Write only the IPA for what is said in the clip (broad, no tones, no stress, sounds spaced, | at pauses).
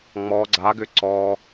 ŋ͡m ɔ ɡ͡ǀ a ɡ ʏ ǀ ɔ